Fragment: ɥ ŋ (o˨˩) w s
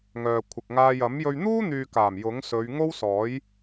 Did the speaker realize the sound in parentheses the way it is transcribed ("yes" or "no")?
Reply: no